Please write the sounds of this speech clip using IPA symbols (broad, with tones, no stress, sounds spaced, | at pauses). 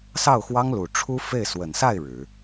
s ɑ˥˩ ʊ̯ x w ɑ˥ ŋ l u˨˩ ʈ͡ʂʰ u˥ f e˥˩ ɪ̯ s w ə˨˩ n s a˥˩ ɪ̯ ɻ ɻ̩˨˩˦